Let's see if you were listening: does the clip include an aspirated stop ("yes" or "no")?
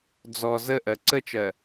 no